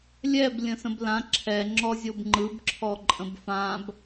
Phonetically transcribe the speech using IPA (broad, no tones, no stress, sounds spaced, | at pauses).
lʲ ɛ b lʲ ə̃ s ə̃ b l ã ǁʰ ɛ ŋ͡ǁ ɔ zʲ o b ŋ͡ǃ ɯ b ǁʰ ɔ ǃʼ ə̃ b f ã b